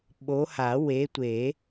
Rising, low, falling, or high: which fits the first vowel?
rising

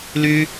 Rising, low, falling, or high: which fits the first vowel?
high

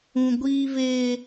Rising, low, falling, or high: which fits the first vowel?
high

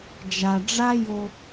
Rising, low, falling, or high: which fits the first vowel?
low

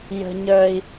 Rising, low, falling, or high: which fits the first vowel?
high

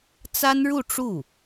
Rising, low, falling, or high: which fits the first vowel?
high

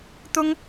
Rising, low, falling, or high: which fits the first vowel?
high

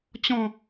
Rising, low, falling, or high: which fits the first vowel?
falling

